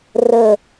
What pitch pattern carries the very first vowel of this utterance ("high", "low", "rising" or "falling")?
low